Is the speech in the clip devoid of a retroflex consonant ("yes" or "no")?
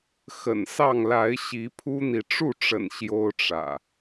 no